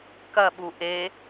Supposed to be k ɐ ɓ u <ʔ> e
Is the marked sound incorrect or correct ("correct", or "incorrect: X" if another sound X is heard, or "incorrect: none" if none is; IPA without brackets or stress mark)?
correct